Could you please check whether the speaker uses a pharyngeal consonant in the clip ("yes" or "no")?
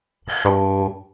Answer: yes